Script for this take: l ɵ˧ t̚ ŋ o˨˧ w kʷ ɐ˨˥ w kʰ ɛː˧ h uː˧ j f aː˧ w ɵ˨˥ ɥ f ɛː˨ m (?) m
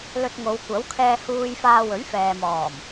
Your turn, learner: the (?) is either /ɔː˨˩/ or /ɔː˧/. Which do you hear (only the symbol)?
ɔː˨˩